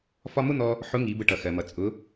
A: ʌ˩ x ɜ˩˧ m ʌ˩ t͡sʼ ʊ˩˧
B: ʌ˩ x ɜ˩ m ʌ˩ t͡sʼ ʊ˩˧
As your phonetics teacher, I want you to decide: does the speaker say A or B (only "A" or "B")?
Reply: B